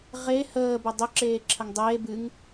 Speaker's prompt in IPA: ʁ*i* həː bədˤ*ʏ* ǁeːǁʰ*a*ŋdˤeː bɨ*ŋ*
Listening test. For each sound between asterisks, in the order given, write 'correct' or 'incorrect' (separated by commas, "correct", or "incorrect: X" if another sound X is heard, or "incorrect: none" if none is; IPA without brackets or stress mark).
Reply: incorrect: e, correct, incorrect: ə, correct